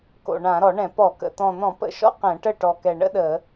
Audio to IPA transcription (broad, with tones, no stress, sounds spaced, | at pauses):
k o̰˨˩ ɳ ã˧˩˧ ɾ ɔ˧˩˧ ɳ ɛ̃˧˩˧ p ɔ˧˩˧ k ə̰˨˩ t̪ ɔ̃˨˩ n̪ ɔ̃˧˩˧ p ə̰˨˩ ʃ ɔ̰˥ q ɛ̃˧˩˧ ʈ ə˥˩ ʈ ɔ˨˩ k ɛ˨˩ ɳ ə̰˥ ɗ ə˧˩˧